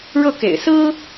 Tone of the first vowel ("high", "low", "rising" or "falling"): falling